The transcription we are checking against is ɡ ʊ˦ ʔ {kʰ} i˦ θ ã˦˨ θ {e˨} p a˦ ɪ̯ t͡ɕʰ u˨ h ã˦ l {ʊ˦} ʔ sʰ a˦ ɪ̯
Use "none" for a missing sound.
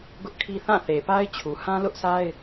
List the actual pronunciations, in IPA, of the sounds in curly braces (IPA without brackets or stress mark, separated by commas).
kʰ, e˨, ʊ˦